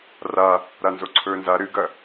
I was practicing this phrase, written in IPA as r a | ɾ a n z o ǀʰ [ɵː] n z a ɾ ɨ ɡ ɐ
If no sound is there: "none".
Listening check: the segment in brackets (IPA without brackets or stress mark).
ɵː